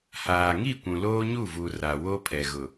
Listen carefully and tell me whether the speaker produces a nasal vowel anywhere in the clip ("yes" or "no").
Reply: yes